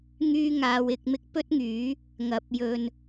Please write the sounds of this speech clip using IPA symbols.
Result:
ŋ yː˥ ŋ aː˧ w ɪ˧ k̚ m ɪ˥ k̚ p ɵ˥ t̚ ŋ yː˨˥ | ŋ ɐ˨˥ p̚ j ɵ˨ n

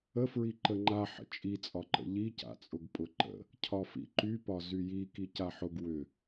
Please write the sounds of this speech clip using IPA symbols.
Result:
ə f ɹ i ǃ ə ŋ͡ǃ a ħ ə̰ t͡ʃʼ i t͡sʼ ɒ ǃ ə̰ ʎ i c a̰ t͡sʼ ʊ ɡ pʼ ʊ ǃ ə̰ | cʰ ɒ f ḭ ǃ y p ɒ z y j i k i c a ħ ʊ ɡ w ʏ

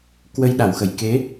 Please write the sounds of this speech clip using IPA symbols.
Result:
k w ə˧ j ɗ a˧˩ w x ə˧˩ j k e˨˦

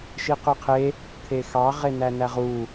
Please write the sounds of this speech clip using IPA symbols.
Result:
ʃ i q y qʰ e | t̪ʰ e x ɑ ʁ e n æ n æ ʁ u

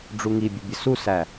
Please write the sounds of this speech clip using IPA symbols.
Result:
ɖ͡ʐ u ŋ i bʲ ə bʲ ə s u s æ

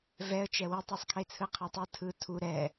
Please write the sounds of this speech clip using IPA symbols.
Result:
v ɛ ə̯ t͡ʃ ɛ w ɛ tˤ i sˤ kʰ e t͡sʰ ɯ qʰ a tˤ ɯ tʰ ɯ tʰ u ɾ ɛ

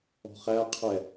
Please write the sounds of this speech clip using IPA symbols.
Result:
ɔ̤ χ æ qʰ ɛ

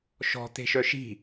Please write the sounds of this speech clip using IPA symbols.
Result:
ʃ ɔ̤ t̪ e̤ ʃ œ ʃ i̤

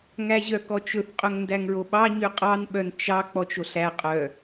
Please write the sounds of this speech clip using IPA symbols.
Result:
ŋ æ ʑ œ k ɔ t͡ʃ ɵ θ qʼ ɵ ŋ n d æ ŋ ɹ o ɓ ɑ ɲ y qʼ ɑ n ɓ œ n t͡ʃ ɑ k͡p ɔ t͡ʃ o ɬ æ qʼ œ

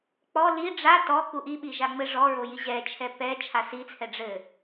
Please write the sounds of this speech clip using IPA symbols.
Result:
k͡p ɔ l i ɖ͡ʐ a t ɔ k u ʔ i ɓ i ʒ a ŋ͡m ɘ ʐ ɔ ɹ o j i ʑ ɛ t͡ʃʰ ɛ p ɛ t͡ʃʰ a s i t͡sʰ ɛ ɖ͡ʐ ɘ

